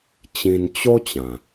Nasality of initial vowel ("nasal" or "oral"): nasal